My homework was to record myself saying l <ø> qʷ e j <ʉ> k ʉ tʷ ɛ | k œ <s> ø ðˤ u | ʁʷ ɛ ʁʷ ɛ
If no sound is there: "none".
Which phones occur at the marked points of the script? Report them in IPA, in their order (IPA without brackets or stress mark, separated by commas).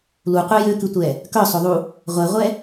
u, ø, sˤ